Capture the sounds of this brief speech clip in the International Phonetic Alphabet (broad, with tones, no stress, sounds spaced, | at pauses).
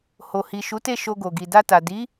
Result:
h o˨ h i˨ ʃ u˨˦ t e˦˨ ʃ o˧ ɡ o˨ ɡ i˨ d a˧ t a˨ d i˨˦